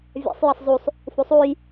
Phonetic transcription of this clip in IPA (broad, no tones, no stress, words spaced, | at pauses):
vʲa̰sˤ jʌsˤzusˤ | fusˤuj